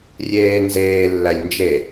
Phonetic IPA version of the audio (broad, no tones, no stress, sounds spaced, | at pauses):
rʲ eː n z eː lː æ lʲ n d͡ʒ e